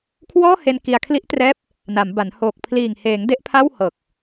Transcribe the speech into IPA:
kʰwɔː˥˩he˧n ki˧a̯ kʰli˦˥ʔtrɛː˦˥p̚ | na˩˦mba˩˦n hoː˨˩k̚pʰliː˨˩ŋheː˩˦ŋ de˥˩ʔpʰa˥˩whɤː˨˩k̚

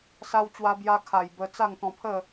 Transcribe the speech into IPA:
sa˧wt͡ɕwa˧ bja˧kʰa˨˩j bə˧ t͡sa˥˧ŋt̪ɔ̃˧pʰə˥˧

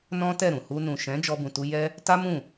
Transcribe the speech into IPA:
nɔ̃˦tɛ˦˨ɾũ˨ hu˧nũ˨ʃɛ̃˨˦ d͡ʒɔ˦bũ˧tu˦ jɛ˦ | ta˦mũ˦˨

